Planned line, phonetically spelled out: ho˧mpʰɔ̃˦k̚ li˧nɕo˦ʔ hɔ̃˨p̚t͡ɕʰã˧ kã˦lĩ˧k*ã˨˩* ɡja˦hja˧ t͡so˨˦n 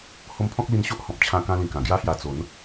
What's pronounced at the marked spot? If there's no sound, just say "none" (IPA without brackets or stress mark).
ã˨˩